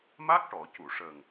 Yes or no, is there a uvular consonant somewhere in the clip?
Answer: no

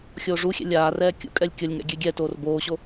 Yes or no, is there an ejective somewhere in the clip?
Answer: yes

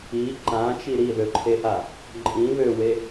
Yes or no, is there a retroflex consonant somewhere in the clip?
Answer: no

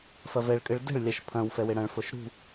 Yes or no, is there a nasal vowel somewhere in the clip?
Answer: yes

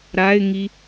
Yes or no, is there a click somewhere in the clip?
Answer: no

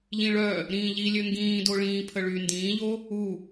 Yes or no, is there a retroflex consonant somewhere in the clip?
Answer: yes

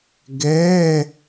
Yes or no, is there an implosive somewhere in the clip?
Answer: no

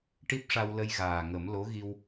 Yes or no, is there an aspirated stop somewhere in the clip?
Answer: no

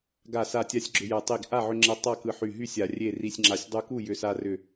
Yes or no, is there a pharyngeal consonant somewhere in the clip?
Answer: yes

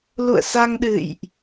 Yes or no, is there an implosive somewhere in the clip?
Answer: yes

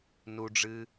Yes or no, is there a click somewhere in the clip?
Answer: no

